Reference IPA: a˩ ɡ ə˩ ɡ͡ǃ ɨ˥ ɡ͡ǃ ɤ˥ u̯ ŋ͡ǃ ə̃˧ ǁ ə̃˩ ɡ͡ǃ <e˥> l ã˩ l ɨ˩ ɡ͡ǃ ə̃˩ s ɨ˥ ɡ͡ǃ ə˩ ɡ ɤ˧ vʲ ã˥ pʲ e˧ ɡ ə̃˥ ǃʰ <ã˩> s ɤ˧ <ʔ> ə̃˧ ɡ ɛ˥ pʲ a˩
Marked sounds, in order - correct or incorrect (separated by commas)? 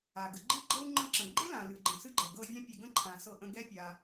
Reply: correct, correct, correct